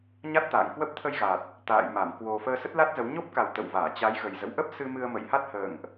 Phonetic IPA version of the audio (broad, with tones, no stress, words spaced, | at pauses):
ɲa˦˥t̚t̪a̰ː˧˨ŋkwə˦˥p̚ t̪ʰə˧jɣa˨˩t̚ | t̪a̰ː˧˨jma˧˩m kwo˧ fəː˧sə˦˥t̚la˦˥t̚zə˨˦w ɲo˦˥p̚ka˨˩w t̪ə̰˧˨w vaː˧˩t͡ɕa˨˦jɣə˨˩j zə̰˧˨wʔə˦˥p̚ sɨ˧mɨ˧ə̯ mə̰˧˨jha˦˥t̚hə̰ː˧˨ŋʔ